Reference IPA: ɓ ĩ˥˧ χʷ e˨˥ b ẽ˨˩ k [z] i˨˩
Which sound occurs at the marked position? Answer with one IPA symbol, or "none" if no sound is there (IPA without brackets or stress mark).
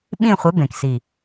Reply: s